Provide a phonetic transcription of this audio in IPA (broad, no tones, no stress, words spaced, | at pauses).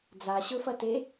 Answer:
d͡zaɕɵfɐte